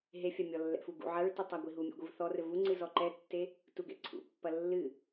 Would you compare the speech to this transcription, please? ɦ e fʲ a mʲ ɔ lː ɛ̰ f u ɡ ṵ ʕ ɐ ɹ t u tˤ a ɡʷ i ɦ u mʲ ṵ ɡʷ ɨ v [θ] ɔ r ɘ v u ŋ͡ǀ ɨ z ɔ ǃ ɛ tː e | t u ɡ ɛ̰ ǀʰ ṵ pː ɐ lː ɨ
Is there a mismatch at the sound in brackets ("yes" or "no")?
no